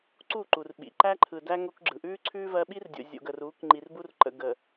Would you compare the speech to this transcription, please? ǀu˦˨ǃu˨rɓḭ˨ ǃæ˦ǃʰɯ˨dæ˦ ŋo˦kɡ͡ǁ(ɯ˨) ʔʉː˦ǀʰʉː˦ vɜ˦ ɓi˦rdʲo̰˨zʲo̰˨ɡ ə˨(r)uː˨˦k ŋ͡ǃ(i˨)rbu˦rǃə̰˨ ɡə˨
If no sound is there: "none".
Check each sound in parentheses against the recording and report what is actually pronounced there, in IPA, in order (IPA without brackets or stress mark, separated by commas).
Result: ɯ˨, r, i˨